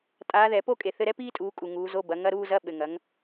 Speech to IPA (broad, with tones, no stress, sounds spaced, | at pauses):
tʼ aː˨˦ ð ɛ˨˩˦ p o˥˧ kʼ e˨ θ ɘ˧˥˧ ɾ ɛ˥ p iː˥ tʼ uː˨˦ kʼ u˨ ŋ uː˨˦ z o˧˥˧ b ɐ˨˦ ŋ ɐ˧˥˧ ɾ uː˥˧ z ɐ˧˥˧ ɓ ɘ˨ ŋ ɐ˨˦ ŋ